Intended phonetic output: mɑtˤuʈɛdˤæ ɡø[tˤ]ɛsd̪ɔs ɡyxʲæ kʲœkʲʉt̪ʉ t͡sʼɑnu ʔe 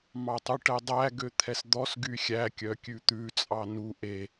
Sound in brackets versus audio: incorrect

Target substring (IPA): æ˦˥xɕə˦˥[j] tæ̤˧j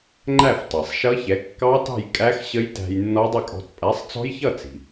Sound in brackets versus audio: correct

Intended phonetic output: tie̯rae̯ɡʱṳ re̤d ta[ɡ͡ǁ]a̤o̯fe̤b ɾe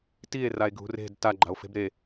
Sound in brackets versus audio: incorrect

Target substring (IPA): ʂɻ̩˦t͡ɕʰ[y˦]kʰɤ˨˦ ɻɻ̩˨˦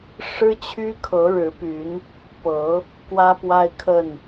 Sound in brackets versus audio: correct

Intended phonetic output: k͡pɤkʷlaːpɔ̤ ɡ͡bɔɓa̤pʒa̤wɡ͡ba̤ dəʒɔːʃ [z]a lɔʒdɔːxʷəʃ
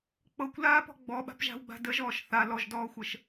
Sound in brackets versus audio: incorrect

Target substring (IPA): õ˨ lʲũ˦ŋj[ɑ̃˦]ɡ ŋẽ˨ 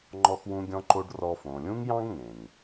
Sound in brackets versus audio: correct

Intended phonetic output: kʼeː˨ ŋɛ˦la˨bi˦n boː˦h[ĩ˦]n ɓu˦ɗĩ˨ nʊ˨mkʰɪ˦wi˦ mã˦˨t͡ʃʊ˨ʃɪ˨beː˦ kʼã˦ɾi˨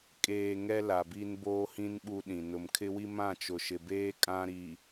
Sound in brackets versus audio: correct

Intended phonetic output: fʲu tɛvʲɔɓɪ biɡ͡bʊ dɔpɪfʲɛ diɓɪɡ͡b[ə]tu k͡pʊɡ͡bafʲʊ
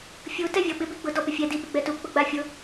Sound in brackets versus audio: incorrect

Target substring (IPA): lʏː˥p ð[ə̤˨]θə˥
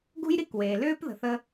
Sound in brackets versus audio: correct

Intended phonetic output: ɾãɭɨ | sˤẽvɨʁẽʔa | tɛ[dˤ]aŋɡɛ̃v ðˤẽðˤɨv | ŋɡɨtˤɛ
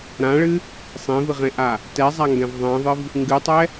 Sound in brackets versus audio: incorrect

